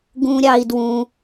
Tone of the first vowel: high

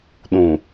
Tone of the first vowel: low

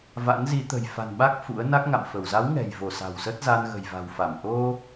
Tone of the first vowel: rising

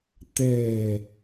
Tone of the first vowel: low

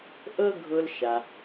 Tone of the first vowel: high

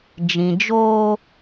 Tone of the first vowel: low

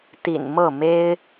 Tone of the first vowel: low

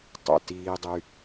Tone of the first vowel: low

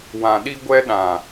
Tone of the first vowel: low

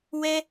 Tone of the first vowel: high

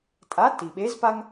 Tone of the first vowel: rising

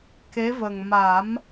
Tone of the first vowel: rising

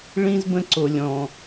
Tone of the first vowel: high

